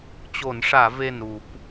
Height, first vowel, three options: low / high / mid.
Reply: mid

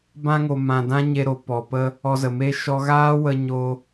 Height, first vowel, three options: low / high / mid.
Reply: low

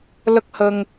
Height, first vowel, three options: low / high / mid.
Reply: mid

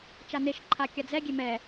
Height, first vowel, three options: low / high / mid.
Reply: low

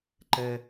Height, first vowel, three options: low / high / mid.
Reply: mid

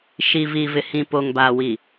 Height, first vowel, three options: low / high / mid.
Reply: high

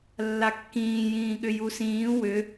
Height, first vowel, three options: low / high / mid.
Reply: low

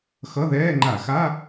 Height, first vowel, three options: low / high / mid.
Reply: mid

